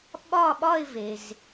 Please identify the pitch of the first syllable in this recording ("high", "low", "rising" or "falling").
falling